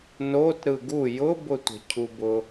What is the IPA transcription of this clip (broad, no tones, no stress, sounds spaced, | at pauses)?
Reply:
n o t ɾ ɯ ɡ u j ʊ b ʊ tʷ ə̤ cʰ u b ʊ